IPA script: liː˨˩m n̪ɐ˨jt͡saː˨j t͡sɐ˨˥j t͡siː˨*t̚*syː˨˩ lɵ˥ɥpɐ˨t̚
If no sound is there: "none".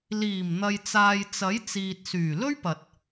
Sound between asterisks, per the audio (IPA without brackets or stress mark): t̚